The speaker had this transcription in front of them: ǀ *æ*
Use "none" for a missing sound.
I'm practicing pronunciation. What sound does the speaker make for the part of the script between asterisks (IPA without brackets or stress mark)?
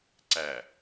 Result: æ